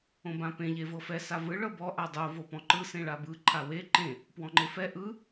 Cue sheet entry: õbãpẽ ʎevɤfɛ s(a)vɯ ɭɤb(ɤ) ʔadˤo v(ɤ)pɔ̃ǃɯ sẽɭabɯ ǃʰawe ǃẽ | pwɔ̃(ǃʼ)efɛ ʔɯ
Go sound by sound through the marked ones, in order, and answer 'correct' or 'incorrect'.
correct, incorrect, incorrect, incorrect

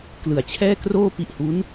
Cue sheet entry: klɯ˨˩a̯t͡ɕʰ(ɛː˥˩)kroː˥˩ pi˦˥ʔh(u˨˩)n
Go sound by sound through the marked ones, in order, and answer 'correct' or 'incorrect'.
correct, incorrect

